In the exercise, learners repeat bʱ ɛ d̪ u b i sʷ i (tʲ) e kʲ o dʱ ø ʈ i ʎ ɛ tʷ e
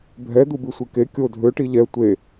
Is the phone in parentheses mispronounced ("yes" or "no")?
yes